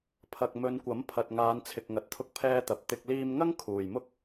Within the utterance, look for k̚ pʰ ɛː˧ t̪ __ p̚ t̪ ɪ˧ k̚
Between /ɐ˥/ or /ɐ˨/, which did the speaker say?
ɐ˨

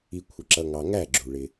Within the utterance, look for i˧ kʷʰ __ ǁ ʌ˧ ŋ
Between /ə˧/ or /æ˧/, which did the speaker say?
ə˧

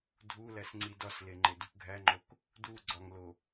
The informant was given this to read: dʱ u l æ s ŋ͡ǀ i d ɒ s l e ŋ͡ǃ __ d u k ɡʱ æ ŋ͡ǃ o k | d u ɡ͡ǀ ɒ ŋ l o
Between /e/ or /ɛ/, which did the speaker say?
e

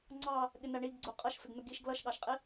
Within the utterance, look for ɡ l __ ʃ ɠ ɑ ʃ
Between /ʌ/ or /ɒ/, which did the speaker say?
ʌ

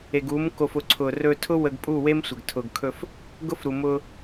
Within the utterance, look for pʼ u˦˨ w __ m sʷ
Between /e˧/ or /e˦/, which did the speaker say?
e˦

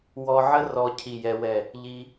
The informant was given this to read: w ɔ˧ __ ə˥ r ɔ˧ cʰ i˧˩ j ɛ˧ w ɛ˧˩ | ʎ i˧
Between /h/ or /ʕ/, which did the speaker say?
ʕ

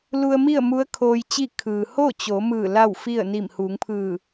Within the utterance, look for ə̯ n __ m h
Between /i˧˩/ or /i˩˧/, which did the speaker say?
i˧˩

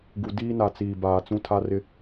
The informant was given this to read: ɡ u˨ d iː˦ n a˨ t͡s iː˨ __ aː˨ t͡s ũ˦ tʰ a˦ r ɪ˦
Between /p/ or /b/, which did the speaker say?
b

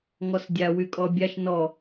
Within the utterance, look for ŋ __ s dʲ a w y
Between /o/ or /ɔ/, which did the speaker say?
ɔ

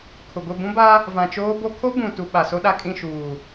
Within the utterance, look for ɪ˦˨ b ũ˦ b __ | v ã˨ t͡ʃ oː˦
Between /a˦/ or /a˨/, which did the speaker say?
a˦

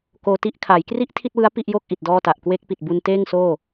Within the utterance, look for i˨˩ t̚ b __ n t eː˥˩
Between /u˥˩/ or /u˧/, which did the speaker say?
u˧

